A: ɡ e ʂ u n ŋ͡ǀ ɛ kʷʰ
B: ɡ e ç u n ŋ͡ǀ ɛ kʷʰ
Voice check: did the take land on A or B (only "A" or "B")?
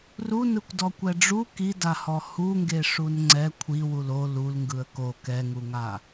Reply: A